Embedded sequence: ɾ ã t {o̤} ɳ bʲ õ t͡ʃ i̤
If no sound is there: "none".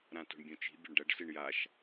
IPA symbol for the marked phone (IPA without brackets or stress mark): o̤